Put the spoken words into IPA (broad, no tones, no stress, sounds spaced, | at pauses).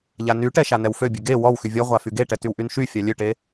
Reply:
ʎ a n y ʈ ɛ ʃ a n ɛ w f ø bʲ ø ɡ e w ɔ w x y vʲ ɔ ʁʷ a f y ɡ e ʈ ɛ t y w ʔ y n ʃ y fʲ a lʲ ø ʈ e